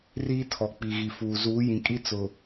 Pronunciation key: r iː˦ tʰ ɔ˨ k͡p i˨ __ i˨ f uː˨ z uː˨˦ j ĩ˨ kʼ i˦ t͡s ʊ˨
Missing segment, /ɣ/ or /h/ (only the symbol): ɣ